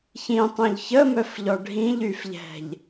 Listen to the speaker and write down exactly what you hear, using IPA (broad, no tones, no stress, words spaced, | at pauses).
çĩtˤœ̃ʎ çəmœfʎɔ ɖʱĩʎyfʎɛ̤ʎ